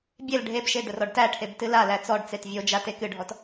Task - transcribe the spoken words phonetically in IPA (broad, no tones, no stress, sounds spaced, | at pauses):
bʲ e l ɖʱ e b ʃ e d̪ ə r ɔ ɖ t æ ʈʰ e b t ɨ l a l æ t͡s ɔ ɖ t͡s e t vʲ o d͡ʒ a t e k ɨ ɖʱ ɔ t